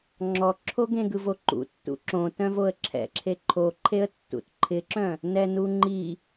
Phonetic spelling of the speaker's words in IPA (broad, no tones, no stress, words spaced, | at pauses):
ŋ͡ǁɔǁʰo ɡẽɡɯvoǃṵ tːṵǁõ tœ̃voə̯ǁʰɛ̰ǁʰe ǃʰoǃʰeə̯ tːṵtǃʰɪǁœ̃ | nɛnuŋ͡ǃi